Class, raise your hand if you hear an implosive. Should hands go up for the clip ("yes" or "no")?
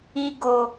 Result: no